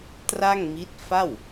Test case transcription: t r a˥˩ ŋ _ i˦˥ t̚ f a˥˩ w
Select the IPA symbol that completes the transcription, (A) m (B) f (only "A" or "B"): A